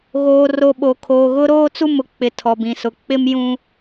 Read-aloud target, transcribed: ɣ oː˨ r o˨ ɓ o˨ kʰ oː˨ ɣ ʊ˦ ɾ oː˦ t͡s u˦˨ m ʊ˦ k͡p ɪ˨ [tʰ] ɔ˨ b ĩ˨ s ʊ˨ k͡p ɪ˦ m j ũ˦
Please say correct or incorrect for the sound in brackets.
correct